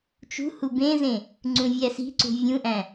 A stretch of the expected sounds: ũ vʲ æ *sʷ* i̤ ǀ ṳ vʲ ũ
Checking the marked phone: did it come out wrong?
yes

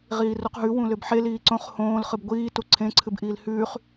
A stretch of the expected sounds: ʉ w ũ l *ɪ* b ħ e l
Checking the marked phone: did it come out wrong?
yes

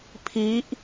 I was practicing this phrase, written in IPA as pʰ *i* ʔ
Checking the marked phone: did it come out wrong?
no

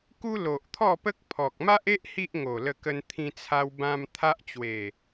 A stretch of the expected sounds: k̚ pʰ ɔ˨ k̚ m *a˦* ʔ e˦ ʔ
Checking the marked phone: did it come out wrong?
no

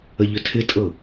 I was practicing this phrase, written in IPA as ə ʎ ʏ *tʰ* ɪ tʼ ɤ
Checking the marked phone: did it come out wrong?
no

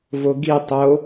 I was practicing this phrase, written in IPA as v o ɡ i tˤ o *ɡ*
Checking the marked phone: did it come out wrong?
yes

